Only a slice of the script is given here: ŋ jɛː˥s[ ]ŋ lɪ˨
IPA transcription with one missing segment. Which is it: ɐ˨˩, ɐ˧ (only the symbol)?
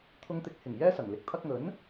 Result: ɐ˨˩